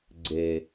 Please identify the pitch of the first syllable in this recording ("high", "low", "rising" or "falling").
low